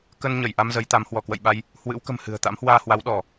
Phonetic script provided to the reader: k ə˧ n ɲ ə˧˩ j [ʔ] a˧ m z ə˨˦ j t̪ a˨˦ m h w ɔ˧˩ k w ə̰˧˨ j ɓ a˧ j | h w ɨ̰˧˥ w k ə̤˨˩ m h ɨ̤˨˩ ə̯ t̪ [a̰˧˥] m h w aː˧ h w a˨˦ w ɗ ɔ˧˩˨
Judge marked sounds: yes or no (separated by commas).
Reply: yes, yes